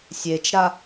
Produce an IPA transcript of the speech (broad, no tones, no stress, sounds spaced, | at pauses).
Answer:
sʲ e t͡ʃ ɾ a